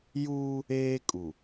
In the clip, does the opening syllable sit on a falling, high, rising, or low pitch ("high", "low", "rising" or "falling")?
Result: high